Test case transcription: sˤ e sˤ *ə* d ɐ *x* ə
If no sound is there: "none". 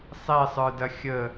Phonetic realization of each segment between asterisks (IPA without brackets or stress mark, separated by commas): ə˞, xʲ